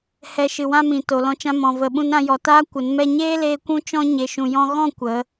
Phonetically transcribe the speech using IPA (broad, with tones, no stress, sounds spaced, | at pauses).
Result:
h ɛ˧ ʃ ɨ˨ w ã˦ m ĩ˨ t o˨ l ɔ̃˧ t͡ʃ ã˧ m ɔ̃˨ v ə˨ ɓ ũ˧ n ɾ ã˧ j ɔ˨ t aː˦ kʷ ə˨˦ n m ɛ˧ ɲ eː˦ l eː˧ kʷ ũ˦ t͡ʃ ɔ̃˦ ɲ e˨ ʃ ũ˨ j ɔ̃˧ ɣ ɔ̃˦˨ kʷ ə˨˦